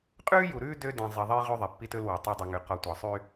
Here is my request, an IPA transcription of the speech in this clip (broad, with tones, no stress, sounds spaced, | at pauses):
qʼ ʉː˦ j u˨ ɾ ʉː˦ d ø˦ d ẽ˨ zˤ i˨ ðˤ e˦ j ʁ y˦ ðˤ e˨ pː i˦ t ɵ˦ l w ɑ˨ tˤ æ˦ dˤ y˨ ŋ y˨ q ɔ˨ tʷ ɑ˨ sˤ y˦